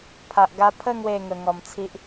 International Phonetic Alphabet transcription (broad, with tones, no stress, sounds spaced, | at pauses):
pʰ a˨ ʔ ɡ a˧ pʰ ə˥˧ ŋ w e˥˧ ŋ ə˧ ŋ ɔ˧ m t͡sʰ i˦ ʔ